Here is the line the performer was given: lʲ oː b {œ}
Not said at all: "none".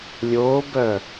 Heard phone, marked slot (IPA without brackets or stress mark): œ